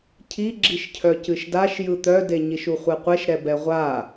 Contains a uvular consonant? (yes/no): yes